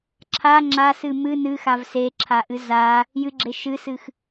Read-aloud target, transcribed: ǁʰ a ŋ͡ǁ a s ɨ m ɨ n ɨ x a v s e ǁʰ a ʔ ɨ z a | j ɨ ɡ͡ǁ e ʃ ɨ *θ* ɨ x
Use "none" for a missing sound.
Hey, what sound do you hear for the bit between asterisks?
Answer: s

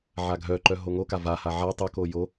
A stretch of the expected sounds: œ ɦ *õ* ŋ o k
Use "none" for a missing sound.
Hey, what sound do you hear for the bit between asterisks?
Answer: o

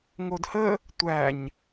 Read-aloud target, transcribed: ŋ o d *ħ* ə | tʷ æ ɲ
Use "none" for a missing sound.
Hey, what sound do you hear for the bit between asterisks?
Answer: h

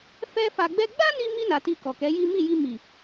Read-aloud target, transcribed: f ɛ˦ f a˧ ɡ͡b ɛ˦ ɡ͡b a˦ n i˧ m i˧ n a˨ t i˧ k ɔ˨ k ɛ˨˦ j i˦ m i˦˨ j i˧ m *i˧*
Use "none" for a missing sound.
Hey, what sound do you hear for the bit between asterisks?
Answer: i˨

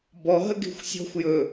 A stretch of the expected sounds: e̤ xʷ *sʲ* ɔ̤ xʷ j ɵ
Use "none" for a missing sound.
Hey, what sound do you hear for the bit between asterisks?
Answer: sʲ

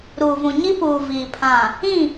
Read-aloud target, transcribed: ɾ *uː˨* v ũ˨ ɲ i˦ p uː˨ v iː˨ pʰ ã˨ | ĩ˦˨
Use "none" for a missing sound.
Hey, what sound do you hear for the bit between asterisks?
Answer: uː˨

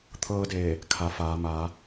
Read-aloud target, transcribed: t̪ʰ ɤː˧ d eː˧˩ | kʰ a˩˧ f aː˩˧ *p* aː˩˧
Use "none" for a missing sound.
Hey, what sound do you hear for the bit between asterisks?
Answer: m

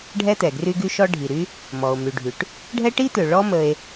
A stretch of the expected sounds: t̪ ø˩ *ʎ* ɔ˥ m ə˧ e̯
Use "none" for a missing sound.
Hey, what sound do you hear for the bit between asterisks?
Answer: ɭ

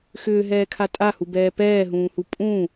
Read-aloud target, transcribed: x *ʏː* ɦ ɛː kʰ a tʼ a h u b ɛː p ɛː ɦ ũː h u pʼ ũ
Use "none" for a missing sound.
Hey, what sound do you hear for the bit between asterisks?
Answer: ʏː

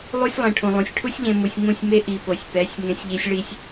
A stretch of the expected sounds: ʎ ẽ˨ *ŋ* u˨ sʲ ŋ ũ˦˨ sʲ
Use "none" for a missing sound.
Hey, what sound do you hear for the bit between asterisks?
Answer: m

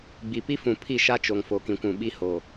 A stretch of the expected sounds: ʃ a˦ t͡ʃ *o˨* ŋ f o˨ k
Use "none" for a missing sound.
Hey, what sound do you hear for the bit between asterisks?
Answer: o˨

